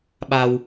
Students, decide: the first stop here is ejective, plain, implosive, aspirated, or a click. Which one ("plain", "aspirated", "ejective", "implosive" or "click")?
implosive